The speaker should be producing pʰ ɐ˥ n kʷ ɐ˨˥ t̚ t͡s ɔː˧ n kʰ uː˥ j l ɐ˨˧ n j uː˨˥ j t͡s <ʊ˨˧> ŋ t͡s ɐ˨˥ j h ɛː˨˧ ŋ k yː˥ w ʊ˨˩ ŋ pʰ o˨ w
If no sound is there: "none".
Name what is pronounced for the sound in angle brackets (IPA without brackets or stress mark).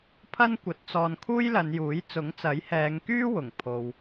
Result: ʊ˨˥